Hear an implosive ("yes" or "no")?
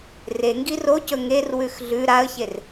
no